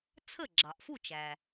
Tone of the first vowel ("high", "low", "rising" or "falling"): falling